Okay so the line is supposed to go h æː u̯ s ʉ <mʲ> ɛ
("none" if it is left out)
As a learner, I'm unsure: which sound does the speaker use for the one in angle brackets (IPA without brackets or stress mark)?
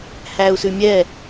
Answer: mʲ